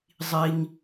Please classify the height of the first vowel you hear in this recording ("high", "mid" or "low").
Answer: high